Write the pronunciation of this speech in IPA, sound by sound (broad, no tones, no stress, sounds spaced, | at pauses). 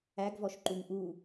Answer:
æ ɡ v ɔ ʃ ǃ u ŋ ʔ u